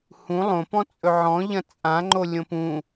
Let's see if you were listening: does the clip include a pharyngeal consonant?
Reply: yes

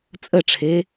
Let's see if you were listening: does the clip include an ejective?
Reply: yes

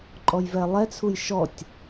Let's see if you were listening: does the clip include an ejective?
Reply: yes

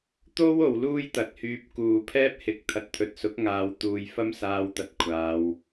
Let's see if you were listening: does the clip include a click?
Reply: no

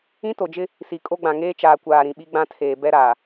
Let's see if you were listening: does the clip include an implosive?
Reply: yes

